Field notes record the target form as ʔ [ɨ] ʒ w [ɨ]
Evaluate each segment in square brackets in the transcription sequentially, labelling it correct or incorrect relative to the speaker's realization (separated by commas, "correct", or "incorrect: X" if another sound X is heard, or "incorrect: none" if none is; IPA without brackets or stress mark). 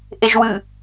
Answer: incorrect: e, correct